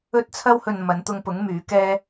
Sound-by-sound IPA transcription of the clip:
ɵ˥ t̚ t͡sʰ ɐ˥ w h ɵ˧ n m ɐ˨˧ n t̪ ʊ˧ ŋ p ʊ˨˥ ŋ m yː˨˥ k ɛː˥

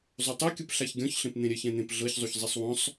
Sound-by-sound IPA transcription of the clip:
zˤ o tˤ ɤ kʲ ɯ p ɬ a ç ɡʲ ɔ̃ ç ɬ ẽ p n̪ ẽ ɾʲ ɛ ç ɛ̃ n̪ ẽ p ɮ ɤ ç zˤ u ç zˤ i sˤ w ɔ̃ sˤ

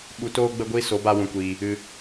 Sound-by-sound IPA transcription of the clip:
ɓ u˨ t oː˧ ɡ͡b ə˧ ɡʷ i˧ s o˨˦ b a˧ w ũ˨ kʷ iː˨ | ɨ˨

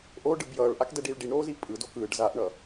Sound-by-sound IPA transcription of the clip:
ʔ o ɖ ɯ b j ʌː ɭ ʔ a k d ɛ ɖ iː ɭ ɖ i ɳ ɾ oː z i pʼ ɯ d o k ɯː ɖ z a ʔ ɳ ʌ

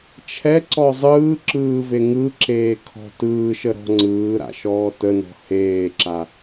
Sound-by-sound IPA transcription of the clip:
t͡ʃʰ ɛ ǀ ɔ zˤ ɯː ǁ ɯː v e ŋ ɯ ǁ eː kʰ ɔ̤ t ɯː ʃ ə ɾ ɔ̤ ŋ͡ǀ ɯː ɾ a̰ ʃ ɔː t ə n ɔ̤ h eː ǁ a

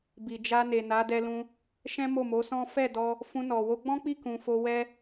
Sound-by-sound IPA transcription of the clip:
b i˨ d͡ʒ a˧ n e˨ n a˨˦ d ɛ˧ l ũ˧ | ʃ ɛ̃˦ m o˦˨ m o˨˦ s ɔ̃˦ f ɛ˦˨ d ɔ˧ | f ũ˧ n ɔ˨ w o˧ ɡ͡b ɔ̃˦ k͡p i˦˨ k ũ˨ f o˧ w ɛ˦

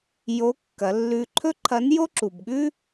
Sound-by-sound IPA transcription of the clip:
j o˧˥ kː ɐ˩˧ lː ʉ˧ ǃʰ ɵ˥ ǃʰ ɐ˧˥ n j o˥ ǁ u˩ b ɠ ʉ˥

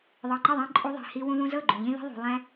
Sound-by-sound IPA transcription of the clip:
ðˤ ɤ˨ ŋ͡ǃ ɪ˦˨ ðˤ ĩ˧ ǃʼ u˧ ðˤ i̤˨ h i˧ w ũ˧ ð ũ˧ z ɤ˦˨ ɡ͡ǃ ũ˨ ʎ ĩ˦ ð i̤˦ ðˤ ṳ˧ lˠ ɛ̃˦

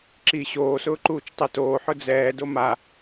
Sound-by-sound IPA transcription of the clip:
ǁ i ɕ oː s ʊː ǃ uː t͡ʃ tˤ i t oː ħ ʊ d͡z ɛː d o m a

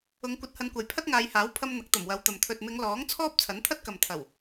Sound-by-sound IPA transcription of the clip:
ʊ˨˧ ŋ kʷ ɐ˧ t̚ h ɐ˧ n kʷ ɐ˨ j pʰ ɐ˥ t̚ ŋ aː˨˧ j h aː˨˥ w pʰ ɐ˧ m n̪ ɐ˨˥ k̚ t̪ ɐ˨˩ m w ɐ˨˧ w t̪ ɐ˨ m t̪ʰ ɵ˨ t̚ m ɪ˨˧ ŋ l ɔː˨˥ ŋ t͡sʰ ɔː˥ p̚ t͡sʰ ɐ˨˥ n t̪ʰ ɐ˥ t̚ k ɐ˨ m t̪ʰ ɐ˨˩ w

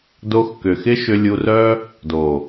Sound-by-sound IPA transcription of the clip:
d o˧ x k ʏ˨ x ɪ˦ ʃ ʏ˧ lʲ u˧ r œ˦ | d oː˨

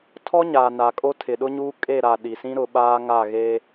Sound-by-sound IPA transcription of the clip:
tʰ ɔ˦ ɲ aː˨ n a˨ kʼ o˦ tʰ ɪ˨ ɗ ʊ˦ ɲ uː˦ kʼ e˦˨ ɾ a˨ ɗ i˨ s ĩ˦ ɾ ʊ˨˦ ɓ aː˦ ŋ a˦˨ ɣ e˦

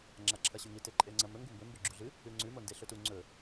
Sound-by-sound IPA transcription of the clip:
ŋ͡ǁ a ǁʰ ɐ ɕ ʉ ŋ i t e ǃʼ e ŋ͡ǀ ɐ m ɵ ŋ ɡ u m b ɵ m b ɵ ɡ͡ǁ u ɮ ɨ | ʉ ŋ͡ǀ ʉ m o n d e ɬ ɵ t u ŋ͡ǀ ɵ

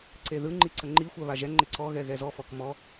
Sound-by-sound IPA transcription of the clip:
ǀ e ð ɯ ŋ͡ǃ i ǀ ə ŋ͡ǃ i xʷ a β a ʒ ɛ ŋ͡ǃ e ǀ ɔ ɣ ɛ ɣ ɛ z ɔ f ɔ k m ɔ

